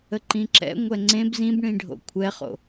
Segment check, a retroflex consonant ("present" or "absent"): present